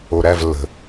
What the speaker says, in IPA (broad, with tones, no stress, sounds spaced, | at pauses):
o˨˩ ɾ æ˦˨ v lː ə̤˨˩